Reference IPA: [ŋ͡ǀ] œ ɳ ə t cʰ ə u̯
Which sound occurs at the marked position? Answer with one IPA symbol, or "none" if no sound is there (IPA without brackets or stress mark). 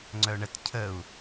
ŋ͡ǀ